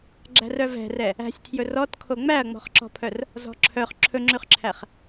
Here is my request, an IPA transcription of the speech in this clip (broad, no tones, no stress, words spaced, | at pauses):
ɡ͡ǁæ̤rœvɛ̤rɛ | æ̤sʲtʰjɵ rɔtkʰo ŋ͡mæɐ̯ŋ͡mɔ̤χǁɔ̤pʰœr | zɔ̤ǁʰœχ ǁʰɵŋ͡ǁʉχǁʰæχ